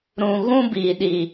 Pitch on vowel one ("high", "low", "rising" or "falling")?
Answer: low